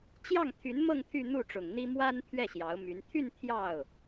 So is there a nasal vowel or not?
no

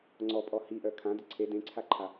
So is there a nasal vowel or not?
yes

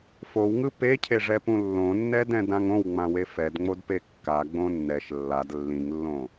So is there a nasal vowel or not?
yes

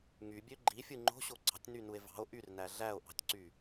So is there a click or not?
yes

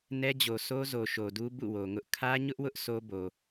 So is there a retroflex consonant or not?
no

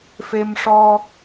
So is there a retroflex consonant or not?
yes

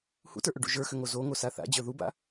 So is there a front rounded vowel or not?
yes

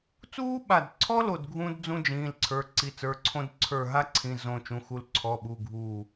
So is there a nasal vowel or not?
yes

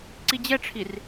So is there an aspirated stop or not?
yes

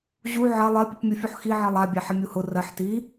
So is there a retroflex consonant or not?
no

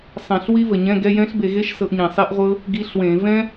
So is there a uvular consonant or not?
yes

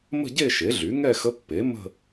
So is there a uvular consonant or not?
no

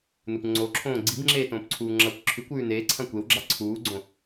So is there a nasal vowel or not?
yes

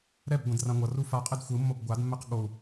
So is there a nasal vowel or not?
yes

